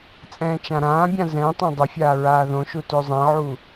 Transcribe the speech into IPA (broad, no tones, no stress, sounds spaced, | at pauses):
t͡sʼ ɛ̃ː t͡ʃ ã ɾ ãː bʲ ã z ɛ̃ tˤ ã dˤ ə fʲ aː ɹ aː ð õ ʃ u t ø zˤ ɛ̃ ʕ u